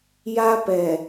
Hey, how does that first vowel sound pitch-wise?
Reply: high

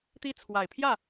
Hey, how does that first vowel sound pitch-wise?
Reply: high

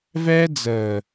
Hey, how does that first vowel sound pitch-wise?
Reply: high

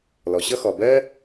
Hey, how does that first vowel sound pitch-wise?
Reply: low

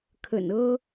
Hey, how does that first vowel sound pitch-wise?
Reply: low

